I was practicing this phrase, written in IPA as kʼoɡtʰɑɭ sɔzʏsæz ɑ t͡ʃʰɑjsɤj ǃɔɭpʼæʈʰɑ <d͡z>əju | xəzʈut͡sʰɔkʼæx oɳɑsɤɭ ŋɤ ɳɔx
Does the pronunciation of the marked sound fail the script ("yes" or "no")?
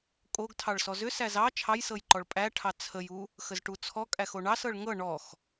yes